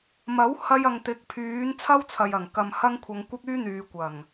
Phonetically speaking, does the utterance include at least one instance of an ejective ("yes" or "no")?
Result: no